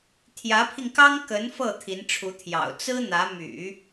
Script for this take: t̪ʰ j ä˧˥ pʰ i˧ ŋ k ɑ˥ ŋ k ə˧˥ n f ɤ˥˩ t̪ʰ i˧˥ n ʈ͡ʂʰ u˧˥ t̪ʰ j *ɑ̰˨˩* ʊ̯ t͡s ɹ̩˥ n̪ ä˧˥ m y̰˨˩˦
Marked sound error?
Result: no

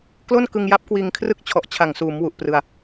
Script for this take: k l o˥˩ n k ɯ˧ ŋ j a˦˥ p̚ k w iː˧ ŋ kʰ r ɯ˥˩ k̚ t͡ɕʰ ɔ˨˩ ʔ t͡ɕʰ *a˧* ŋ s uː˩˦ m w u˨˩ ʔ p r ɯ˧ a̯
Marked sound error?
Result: yes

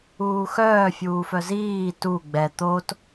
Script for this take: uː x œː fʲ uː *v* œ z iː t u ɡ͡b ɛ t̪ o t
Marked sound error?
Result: yes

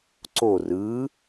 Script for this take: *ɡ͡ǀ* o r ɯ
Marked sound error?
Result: yes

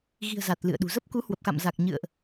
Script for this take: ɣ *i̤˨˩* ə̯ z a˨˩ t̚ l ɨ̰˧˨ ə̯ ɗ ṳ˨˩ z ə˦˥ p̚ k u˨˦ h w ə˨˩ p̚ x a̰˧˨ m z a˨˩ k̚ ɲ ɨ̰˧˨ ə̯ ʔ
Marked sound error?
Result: no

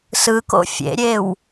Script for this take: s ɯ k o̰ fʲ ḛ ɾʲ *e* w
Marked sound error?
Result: no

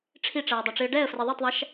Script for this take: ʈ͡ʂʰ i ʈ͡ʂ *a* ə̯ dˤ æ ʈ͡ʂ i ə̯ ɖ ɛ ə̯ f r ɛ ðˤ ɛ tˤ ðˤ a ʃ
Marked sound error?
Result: yes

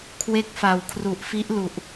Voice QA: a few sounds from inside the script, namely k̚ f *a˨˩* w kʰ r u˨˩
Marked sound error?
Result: no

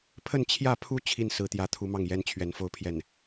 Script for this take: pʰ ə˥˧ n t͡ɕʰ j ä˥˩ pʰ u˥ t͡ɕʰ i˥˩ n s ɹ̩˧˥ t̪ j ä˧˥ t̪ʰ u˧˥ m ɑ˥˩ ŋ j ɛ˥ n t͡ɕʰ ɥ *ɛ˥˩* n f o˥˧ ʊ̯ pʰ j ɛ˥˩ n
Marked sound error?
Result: yes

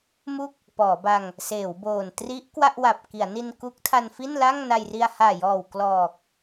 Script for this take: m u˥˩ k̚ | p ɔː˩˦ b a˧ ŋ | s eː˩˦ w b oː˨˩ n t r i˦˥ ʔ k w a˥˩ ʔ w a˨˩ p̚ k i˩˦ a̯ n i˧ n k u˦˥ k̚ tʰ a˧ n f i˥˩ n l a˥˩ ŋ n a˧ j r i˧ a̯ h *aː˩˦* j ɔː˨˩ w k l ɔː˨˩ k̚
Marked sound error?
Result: yes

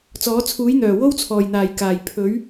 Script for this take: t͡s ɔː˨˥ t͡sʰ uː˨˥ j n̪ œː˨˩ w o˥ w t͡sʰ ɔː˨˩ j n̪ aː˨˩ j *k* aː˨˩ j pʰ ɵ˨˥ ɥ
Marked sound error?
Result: no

